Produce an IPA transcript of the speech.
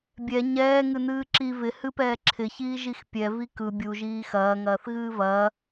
bʲ ɛ ɲ ɛː ŋ ɨ n ɨː ǁ i v ɪ h ɨ p ɛː ǁʰ ɪ ç iː ʒ i x pʲ ɛ v i k ɯ bʲ u ʒ iː x ɐː ŋ ɐː θ ɣ ɨː v ɐː

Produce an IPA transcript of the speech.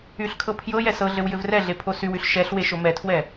y ɬ kʰ ɤ pʰ j ɤ j ɛ s ɤ ɮ ɘ w j ɘ v r ɛ ɮ e pʰ o s y w y ɬ ʃ ɛ ɬ w e ʃ o m ɛ tʰ w ɛ

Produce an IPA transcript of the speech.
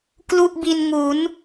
k l u˥˩ ʔ b i˧ n ŋ u˩˦ n

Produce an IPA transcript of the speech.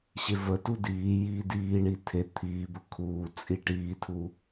ɕ e v ə t u d iː j iː d iː ɳ i tʰ e t̪ʰ iː b ə kʰ uː t͡sʼ i ʈ iː tʰ u

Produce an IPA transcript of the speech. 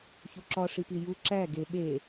ç u ǁ ɒ ʂ i p i j u ǁ æ ɡ e ɓ e

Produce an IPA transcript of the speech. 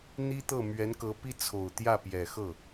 n̪ i˥ t̪ ɤ˥˩ m ɥ ɛ˧˥ n k ɤ˧˥ p i˥ t͡sʰ o˨˩ ʊ̯ t̪ j ä˥˩ p j ɛ˨˩ x ɤ˥˩

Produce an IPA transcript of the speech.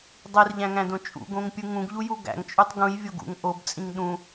dˤ i r ʎ æ̃ ŋ æ̃ d õ t͡ʃʼ ṵ ɡ õ ŋ pʲ ɯ ŋ ũ ɡ ʎ u j u ɡ æ̰ ŋ t͡ʃʼ u tˤ ɡ ũ j vʲ o ɡ ṵ ŋ ʔ o b t͡sʼ ĩ ŋ ɗ ũ

